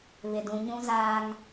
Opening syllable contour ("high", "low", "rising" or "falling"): low